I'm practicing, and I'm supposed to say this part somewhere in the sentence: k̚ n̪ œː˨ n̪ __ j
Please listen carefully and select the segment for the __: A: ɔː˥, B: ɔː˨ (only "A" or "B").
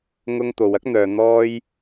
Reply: A